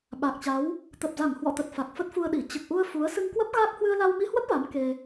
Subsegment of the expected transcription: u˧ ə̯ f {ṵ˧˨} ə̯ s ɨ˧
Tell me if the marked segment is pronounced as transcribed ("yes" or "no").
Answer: no